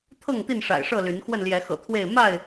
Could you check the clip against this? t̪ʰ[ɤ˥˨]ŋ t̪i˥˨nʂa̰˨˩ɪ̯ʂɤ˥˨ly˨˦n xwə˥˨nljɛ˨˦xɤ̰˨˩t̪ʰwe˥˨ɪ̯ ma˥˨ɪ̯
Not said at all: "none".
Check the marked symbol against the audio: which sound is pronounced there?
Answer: ɤ˥˨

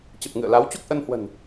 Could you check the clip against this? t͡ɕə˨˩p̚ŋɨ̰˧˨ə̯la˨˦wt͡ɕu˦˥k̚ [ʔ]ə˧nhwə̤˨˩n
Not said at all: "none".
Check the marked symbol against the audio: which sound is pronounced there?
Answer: ʔ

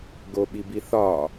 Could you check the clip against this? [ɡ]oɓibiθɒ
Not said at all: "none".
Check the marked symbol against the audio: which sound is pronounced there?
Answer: ɡ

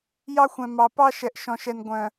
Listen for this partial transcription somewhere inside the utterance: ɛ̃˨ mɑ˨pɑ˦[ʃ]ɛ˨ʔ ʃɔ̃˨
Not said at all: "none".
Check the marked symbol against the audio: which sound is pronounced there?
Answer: ʃ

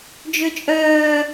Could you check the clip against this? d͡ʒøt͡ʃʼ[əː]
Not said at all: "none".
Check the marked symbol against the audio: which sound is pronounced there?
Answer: œː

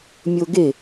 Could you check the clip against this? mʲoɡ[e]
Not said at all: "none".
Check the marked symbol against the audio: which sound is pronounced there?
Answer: e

